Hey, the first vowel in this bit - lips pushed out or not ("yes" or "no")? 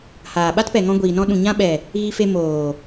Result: no